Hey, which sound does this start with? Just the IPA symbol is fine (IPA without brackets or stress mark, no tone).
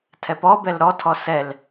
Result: tʰ